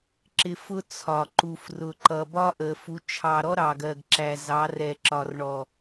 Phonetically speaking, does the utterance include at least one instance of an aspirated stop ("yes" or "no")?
yes